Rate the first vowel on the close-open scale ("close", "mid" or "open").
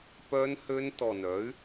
mid